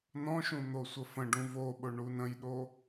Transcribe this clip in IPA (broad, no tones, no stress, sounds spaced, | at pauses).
n ɔ̃ ʃ ũ n̪ o sʷ ə f ə̃ ɖ ũ v o ɓ ʊ ɳ u n ə̃ j ɗ o